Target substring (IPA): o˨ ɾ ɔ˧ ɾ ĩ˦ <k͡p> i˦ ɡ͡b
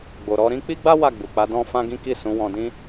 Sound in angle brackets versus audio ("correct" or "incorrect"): correct